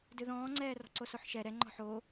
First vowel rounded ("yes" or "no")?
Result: no